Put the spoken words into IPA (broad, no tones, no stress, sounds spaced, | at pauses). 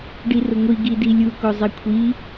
ɖ i r ʊ ŋʷ i ɡ i d i lʲ u k o zˤ i kʷʰ i